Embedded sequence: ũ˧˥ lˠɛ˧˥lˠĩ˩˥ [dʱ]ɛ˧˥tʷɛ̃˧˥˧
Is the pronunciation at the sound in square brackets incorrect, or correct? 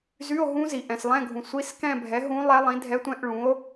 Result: correct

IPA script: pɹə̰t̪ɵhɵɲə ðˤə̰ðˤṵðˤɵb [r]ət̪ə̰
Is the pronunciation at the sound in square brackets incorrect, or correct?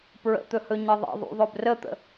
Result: correct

